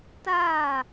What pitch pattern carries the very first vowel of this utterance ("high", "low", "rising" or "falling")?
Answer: falling